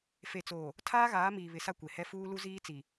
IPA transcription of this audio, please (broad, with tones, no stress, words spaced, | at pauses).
fe˨t͡soː˨ | tʰaː˦ɣaː˨˦miː˨ βɪ˨˦sa˦kʷe˨hɛ˦ fuː˦ lu˦ziː˦t͡si˨